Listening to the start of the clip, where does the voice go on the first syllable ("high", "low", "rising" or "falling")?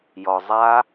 low